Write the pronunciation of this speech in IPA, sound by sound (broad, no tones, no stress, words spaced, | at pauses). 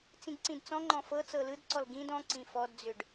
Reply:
t͡sĩɡǀĩdt͡sɔ̃ŋ͡ǃɔ̃ fɤ t͡sɤlɯdǀɔl ɡĩd ɔ̃ǀĩ fɔdd͡zʏɖ